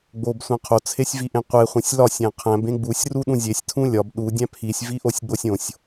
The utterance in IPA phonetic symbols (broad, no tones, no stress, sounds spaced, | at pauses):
ɡ͡b o b sʷ æ̃ qʰ o t͡sʰ e sʲ v i ʔ ẽ qʷ e χʷ ẽ sʲ l ɒ sʲ æ̃ qʰ æ̃ b ẽ ɡ͡b u sʲ r u ɗ ũ zʲ e sʲ tʰ ũ lʲ ɒ b ɗ u dʲ æ̃ pʰ i sʲ v i ʔ o sʲ ɡ͡b o sʲ õ sʲ